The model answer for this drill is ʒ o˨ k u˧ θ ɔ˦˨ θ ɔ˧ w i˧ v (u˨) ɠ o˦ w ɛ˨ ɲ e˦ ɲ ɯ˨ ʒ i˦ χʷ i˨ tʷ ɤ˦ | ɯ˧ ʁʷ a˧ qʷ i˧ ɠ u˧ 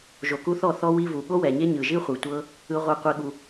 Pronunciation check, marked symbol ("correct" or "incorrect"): correct